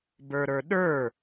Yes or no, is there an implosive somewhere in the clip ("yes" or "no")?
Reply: yes